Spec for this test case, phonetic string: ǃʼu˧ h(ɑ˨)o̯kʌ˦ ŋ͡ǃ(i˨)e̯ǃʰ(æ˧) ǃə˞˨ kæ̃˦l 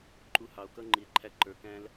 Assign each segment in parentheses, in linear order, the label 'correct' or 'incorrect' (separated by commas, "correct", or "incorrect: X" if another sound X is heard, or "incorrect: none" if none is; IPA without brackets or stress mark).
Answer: correct, correct, correct